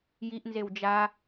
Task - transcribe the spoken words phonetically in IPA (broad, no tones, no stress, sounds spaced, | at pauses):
j i ʔ n z e w d͡ʒ a